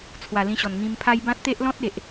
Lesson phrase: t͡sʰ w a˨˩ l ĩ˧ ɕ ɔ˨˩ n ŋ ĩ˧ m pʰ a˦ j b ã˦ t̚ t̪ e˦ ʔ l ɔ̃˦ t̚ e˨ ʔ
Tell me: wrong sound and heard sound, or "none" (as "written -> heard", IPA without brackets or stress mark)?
none